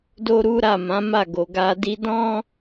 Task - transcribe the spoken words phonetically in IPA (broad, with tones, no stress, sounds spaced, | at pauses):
d o˦ ɾ u˦ ɾ a˦˨ m ã˨˦ m a˦˨ ɡ o˨ ɡ a˧ d i˧ d ɔ̃˦